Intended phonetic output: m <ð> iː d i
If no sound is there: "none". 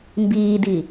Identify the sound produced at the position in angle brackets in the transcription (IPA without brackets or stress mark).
b